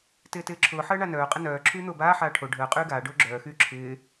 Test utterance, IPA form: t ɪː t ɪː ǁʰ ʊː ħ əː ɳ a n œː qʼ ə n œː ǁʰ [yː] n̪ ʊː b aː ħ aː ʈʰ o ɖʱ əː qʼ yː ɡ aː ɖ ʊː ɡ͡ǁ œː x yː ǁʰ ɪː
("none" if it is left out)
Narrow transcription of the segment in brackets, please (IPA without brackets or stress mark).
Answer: yː